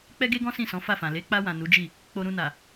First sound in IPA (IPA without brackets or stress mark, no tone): k͡p